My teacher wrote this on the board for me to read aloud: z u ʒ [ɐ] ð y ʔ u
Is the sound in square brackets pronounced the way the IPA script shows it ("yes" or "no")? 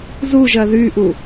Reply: yes